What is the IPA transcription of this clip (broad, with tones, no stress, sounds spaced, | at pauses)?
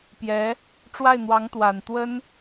p j ɛ˧˥ | ʈ͡ʂ w a˥˩ ɪ̯ n̪ w ɑ˧˥ ŋ t̪ w a˨˩ n t̪ w ə˥ n